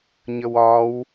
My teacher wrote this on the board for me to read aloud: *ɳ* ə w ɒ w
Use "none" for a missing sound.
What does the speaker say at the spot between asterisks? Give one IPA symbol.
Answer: ɲ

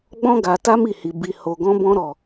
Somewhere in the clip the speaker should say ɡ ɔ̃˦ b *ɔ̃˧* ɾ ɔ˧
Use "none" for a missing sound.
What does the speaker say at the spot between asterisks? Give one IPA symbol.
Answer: ɔ̃˦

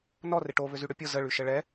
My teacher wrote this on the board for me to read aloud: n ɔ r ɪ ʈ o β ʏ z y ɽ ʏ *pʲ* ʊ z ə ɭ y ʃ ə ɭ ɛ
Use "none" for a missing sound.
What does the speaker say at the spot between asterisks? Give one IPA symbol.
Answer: pʲ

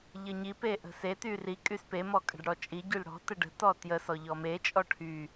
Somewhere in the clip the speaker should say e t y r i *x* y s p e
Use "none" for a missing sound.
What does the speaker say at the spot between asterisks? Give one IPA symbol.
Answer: kʼ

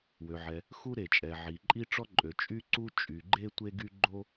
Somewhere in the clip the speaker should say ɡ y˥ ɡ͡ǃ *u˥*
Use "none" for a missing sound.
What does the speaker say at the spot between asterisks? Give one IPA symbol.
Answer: o˥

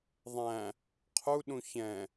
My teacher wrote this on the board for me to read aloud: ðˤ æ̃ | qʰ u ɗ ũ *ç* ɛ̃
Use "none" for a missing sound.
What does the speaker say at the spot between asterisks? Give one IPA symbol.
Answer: ç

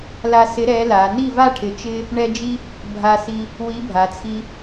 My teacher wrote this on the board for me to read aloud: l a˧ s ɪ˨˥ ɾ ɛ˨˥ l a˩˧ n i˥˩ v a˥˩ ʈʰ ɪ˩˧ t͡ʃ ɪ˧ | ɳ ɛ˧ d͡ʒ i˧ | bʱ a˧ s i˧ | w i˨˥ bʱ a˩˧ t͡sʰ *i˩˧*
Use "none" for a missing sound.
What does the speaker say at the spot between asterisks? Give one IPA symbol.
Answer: i˧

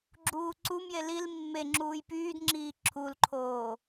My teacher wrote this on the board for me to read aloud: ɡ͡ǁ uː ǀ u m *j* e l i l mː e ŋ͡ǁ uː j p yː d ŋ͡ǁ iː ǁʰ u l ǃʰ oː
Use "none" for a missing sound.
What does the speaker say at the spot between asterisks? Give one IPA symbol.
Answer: j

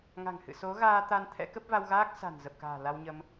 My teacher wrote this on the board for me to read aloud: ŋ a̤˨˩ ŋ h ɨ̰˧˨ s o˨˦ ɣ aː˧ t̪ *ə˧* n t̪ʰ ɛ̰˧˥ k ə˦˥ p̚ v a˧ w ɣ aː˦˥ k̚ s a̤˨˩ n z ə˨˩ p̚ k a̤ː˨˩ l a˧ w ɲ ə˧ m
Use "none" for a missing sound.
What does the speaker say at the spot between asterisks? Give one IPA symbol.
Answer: a˧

